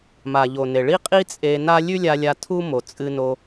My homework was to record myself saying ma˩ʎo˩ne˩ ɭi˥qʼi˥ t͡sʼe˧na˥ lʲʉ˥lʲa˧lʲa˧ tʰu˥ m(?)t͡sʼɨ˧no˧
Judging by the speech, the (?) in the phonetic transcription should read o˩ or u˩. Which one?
o˩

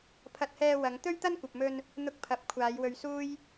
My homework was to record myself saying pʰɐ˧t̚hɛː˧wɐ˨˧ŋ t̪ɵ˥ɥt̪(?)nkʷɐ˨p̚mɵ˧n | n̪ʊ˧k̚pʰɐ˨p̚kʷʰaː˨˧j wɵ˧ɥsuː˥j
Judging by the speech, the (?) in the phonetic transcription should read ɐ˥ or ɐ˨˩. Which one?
ɐ˥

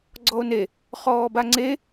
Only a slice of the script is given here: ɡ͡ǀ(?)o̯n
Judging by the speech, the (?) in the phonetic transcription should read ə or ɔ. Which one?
ɔ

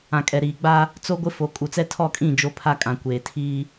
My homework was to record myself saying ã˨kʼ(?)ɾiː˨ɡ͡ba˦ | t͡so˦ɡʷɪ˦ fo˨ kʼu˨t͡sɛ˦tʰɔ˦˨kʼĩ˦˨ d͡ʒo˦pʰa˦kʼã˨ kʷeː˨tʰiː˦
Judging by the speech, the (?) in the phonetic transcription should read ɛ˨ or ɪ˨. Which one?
ɛ˨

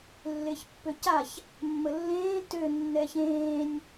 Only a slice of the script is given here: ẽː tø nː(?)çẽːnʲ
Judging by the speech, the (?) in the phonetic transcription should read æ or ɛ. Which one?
ɛ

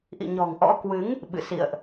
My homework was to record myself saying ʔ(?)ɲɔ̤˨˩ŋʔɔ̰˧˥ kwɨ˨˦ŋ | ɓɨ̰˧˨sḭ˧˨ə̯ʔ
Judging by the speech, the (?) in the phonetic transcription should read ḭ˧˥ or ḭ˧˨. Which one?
ḭ˧˨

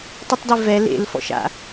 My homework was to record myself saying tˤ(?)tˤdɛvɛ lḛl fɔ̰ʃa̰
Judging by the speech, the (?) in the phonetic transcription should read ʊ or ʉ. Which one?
ʊ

